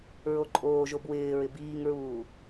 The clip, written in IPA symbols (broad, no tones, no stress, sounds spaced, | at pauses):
ɹ o ǃʼ oː ʒ o b w ɪː ɹ ɪ b iː ŋ ɹ uː